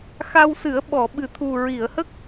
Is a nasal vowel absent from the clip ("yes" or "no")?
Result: yes